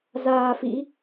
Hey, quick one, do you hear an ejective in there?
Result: no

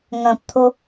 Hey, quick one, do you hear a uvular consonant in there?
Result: no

